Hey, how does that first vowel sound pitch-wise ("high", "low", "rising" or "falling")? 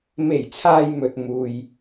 low